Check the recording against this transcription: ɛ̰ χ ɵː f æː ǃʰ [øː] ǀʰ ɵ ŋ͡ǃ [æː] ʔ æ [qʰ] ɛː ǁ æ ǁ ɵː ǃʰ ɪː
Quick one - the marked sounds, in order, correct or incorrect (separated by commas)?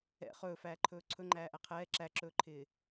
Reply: incorrect, correct, correct